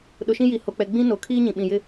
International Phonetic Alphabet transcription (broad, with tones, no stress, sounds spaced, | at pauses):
ɗ ʊ˨ ʃ ĩ˦ j i˨ h o˨ k͡p ɛ˨ ɡ͡b ĩ˦ n o˨ kʰ iː˦ ɲ ĩ˨ ɓ ĩ˨ j ɪ˦